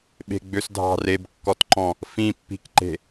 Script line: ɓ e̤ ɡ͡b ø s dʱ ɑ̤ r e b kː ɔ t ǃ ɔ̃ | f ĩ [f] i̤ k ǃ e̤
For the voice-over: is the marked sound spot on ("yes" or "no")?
no